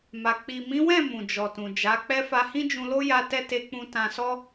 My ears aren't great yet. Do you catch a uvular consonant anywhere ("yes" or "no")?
no